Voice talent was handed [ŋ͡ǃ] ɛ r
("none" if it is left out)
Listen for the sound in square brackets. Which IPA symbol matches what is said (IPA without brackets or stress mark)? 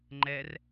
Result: ŋ͡ǃ